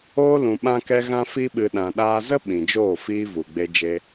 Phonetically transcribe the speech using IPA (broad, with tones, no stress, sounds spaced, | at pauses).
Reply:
oː˦ l ũ˨ ɓ ã˧ k ɛ˧ ɣ ã˧ f i˧ ɓ ɨ˨ ɗ ã˨ ɗ aː˧ z ə˦ ɓ ĩ˨ d͡ʒ oː˦˨ f iː˦ v u˨ ɡ͡b e˦ d͡ʒ e˧